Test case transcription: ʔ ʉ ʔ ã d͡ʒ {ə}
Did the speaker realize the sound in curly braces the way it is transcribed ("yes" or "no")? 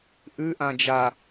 no